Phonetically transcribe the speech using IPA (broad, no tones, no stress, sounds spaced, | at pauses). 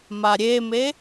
m a ɾʲ e m e